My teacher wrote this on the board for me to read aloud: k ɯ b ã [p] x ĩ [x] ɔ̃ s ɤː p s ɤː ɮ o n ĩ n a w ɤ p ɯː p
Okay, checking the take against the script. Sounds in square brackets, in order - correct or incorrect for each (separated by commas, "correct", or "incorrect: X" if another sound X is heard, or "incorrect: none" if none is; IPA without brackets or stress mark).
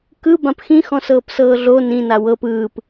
correct, correct